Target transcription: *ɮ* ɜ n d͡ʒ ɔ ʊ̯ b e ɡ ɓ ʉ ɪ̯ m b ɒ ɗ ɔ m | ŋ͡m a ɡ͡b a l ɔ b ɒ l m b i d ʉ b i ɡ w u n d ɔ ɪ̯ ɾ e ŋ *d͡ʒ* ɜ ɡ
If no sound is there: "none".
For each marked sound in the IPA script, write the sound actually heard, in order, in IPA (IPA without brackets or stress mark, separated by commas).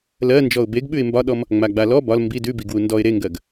l, ɡ